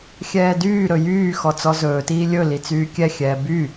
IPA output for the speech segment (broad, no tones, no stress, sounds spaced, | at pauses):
xʲ ɛː d yː ɾ ɵ j yː x ɔ t͡s ɔ z ɵː t iː lʲ ɵ l i t͡s yː kʲ ɛ xʲ ɛː b y